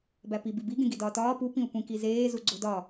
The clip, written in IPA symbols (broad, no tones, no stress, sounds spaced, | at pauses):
b æ p i b i b i ɡ ẽ ɡ i d ɒː t ɒː p u p ĩ u̯ kʷ ĩ k i z eː z u ɡ͡ǀ o d ɒ